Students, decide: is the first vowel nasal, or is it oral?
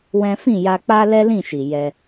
nasal